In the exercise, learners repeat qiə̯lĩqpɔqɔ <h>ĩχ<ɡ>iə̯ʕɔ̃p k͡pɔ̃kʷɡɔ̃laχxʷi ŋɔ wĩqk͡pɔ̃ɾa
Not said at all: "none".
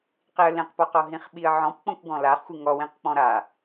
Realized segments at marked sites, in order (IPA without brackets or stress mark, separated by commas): ɦ, ɓ